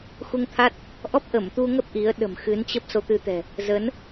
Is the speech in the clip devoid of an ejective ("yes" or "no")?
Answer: yes